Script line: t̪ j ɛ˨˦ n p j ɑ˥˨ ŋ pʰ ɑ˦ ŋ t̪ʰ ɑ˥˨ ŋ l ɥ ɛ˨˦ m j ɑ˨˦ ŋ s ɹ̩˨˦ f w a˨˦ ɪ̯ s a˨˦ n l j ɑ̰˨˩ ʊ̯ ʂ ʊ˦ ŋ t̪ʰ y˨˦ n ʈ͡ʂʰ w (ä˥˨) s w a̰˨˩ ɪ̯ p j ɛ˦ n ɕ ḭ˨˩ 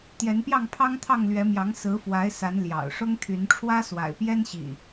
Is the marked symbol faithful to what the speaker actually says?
no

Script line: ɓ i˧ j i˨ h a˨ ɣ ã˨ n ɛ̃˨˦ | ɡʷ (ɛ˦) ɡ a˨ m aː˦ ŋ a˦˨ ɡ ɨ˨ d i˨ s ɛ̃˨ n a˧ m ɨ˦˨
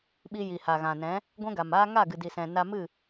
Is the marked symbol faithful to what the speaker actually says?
no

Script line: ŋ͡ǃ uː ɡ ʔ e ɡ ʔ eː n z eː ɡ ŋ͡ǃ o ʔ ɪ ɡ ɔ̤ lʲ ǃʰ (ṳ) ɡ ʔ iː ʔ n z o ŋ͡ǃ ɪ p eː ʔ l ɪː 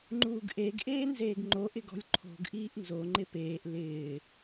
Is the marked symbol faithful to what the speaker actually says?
no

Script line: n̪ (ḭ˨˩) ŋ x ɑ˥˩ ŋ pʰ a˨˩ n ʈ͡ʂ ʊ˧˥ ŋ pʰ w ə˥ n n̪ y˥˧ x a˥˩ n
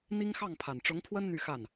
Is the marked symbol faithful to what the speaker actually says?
no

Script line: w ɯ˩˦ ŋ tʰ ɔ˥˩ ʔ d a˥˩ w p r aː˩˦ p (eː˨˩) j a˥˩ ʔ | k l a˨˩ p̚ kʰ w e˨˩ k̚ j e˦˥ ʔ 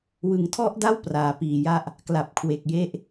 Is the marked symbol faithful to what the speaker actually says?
no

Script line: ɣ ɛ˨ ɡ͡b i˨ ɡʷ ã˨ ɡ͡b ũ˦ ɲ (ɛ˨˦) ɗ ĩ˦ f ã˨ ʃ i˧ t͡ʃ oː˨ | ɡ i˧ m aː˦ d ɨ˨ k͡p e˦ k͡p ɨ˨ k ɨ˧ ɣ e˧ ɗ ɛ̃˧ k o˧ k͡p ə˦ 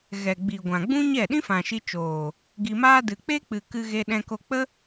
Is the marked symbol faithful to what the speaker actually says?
no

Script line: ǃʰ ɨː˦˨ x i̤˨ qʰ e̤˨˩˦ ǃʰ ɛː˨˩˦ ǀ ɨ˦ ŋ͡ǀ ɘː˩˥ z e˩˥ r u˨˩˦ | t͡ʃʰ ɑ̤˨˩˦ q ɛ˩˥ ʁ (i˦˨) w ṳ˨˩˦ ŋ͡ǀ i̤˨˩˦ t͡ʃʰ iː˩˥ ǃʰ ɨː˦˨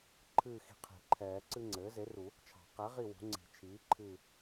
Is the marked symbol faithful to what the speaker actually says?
yes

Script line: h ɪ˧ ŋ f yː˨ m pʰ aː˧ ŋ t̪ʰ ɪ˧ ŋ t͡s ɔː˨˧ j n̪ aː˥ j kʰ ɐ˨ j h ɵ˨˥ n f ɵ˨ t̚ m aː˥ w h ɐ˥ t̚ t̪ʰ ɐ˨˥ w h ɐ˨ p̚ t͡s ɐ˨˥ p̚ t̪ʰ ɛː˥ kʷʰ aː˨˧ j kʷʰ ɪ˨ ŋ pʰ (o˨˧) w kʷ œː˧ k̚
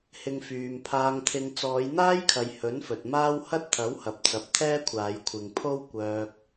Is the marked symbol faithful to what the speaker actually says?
no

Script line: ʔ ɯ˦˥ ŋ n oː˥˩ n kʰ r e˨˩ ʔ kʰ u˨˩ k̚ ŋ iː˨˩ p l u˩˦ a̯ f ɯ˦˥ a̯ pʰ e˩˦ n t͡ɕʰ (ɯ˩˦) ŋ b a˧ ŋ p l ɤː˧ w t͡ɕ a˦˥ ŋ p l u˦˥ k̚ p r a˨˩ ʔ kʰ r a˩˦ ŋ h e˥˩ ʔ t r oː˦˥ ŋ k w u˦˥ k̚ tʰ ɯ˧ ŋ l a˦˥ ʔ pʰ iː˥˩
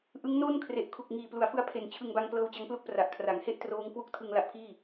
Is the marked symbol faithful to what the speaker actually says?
no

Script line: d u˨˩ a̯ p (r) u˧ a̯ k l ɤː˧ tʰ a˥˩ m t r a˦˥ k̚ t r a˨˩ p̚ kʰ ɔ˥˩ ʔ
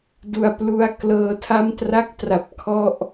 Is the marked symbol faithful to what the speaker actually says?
no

